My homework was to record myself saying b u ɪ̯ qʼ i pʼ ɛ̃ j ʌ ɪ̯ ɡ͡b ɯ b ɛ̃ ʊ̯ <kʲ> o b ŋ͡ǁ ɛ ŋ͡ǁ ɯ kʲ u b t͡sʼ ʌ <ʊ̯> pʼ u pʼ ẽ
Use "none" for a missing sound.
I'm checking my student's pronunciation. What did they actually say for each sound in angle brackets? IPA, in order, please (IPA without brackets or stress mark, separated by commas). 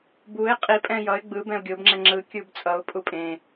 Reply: ɡʲ, ʊ̯